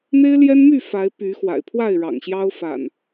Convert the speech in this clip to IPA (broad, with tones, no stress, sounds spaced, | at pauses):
n̪ e˦ ɪ̯ l j ɛ˦ n m y˥˨ f a˨˦ ɪ̯ p y˨˦ x w a̰˨˩ ɪ̯ pʰ w a˥˨ ɪ̯ ɻ ɑ̰˨˩ ŋ ɕ j ɑ˦ ʊ̯ f a̰˨˩ n